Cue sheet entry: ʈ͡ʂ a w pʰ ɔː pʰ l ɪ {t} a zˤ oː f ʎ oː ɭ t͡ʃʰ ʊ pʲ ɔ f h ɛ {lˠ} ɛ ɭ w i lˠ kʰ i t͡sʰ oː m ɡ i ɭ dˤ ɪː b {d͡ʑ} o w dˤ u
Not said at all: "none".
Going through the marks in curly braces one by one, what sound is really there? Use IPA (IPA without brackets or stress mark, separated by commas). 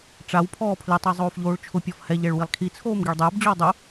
tˤ, ʎ, d͡ʑ